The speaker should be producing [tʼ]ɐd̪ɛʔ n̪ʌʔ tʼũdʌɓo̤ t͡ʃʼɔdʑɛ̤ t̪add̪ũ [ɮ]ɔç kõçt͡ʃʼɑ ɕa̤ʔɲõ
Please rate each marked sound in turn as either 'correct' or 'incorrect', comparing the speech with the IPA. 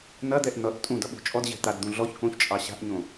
incorrect, correct

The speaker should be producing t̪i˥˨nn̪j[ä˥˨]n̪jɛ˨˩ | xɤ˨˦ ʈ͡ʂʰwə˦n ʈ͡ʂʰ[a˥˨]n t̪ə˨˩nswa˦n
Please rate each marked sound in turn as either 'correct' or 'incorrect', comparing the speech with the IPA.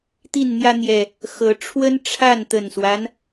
incorrect, correct

